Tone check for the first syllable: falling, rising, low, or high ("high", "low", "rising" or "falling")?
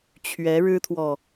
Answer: rising